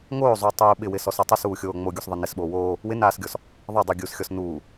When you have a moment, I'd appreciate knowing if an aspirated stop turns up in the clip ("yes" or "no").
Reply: no